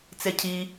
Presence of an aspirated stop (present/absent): present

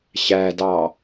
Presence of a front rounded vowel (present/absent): absent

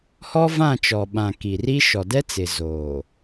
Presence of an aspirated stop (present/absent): absent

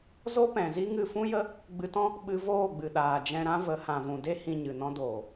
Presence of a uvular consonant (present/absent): absent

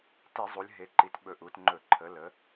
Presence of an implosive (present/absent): present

